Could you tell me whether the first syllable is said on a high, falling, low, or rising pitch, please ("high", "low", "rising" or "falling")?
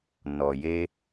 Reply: low